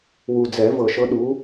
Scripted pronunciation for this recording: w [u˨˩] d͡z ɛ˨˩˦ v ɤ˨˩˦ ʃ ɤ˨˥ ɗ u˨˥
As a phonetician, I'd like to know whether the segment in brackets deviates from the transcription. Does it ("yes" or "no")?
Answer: no